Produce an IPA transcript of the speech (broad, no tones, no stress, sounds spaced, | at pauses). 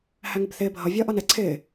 h æ ŋ ɪ b θ ɪː bʱ ʌ vʲ ʌː ʔ ʌ n ɛ ǀʰ ɪː